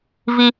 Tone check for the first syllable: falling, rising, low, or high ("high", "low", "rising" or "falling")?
high